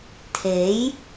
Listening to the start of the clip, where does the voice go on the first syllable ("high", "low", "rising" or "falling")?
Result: rising